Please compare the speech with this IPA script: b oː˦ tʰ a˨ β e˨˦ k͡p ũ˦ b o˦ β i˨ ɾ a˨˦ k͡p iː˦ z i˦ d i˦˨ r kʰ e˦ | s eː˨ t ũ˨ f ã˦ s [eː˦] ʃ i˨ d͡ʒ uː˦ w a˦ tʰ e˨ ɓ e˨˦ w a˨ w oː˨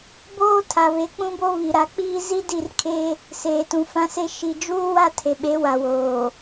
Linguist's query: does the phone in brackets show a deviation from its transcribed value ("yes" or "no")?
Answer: yes